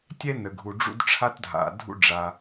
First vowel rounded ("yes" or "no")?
no